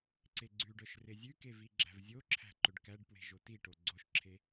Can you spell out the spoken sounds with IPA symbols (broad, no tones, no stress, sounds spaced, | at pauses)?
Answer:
ǀ e ɡ͡ǀ ʉ ɖ œ ʃ r e zʲ ʉ k e v i ɡ͡ǁ æ̤ v zʲ o ǁʰ æ̤ ǃ ɵ ɖ k æ ɖ p w e̤ ʒ o t i ʈ o ɡ͡ǀ o ʃ ǁʰ e